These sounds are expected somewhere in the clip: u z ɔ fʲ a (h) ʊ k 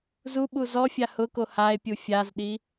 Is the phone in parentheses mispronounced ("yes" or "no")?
no